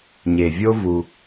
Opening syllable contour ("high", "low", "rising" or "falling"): low